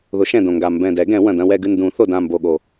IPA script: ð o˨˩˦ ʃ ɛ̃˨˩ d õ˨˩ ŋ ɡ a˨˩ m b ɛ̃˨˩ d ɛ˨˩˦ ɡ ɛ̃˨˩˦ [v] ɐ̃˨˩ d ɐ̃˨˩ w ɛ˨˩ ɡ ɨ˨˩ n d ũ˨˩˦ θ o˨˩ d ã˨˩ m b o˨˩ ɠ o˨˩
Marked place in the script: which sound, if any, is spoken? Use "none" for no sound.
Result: w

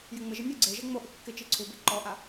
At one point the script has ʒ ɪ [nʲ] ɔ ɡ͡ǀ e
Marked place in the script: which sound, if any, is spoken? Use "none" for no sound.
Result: nʲ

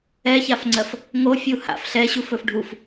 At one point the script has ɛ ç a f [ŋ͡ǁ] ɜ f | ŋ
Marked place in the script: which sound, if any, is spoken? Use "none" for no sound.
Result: ŋ͡ǀ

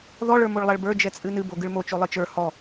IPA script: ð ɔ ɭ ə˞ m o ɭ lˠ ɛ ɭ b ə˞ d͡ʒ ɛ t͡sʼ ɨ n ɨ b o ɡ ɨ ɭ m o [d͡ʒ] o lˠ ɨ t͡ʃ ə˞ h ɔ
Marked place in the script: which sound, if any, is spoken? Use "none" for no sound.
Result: t͡ʃ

